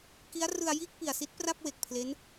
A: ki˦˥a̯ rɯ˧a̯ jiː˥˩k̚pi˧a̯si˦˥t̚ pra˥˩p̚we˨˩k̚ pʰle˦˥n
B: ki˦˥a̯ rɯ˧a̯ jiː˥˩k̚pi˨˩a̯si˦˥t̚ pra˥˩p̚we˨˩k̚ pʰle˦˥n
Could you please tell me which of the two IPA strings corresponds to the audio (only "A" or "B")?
B